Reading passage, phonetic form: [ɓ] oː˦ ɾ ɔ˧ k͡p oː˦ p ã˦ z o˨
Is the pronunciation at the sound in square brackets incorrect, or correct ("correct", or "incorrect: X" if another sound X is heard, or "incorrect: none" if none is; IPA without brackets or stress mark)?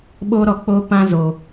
correct